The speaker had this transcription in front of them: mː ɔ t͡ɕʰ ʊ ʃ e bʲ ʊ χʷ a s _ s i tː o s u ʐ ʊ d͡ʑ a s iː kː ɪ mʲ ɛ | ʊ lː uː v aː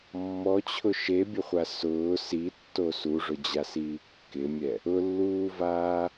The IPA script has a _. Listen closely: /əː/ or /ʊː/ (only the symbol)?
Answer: ʊː